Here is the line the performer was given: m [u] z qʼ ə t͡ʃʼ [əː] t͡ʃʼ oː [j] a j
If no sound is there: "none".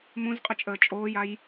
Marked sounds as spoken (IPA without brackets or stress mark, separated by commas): ũ, əː, j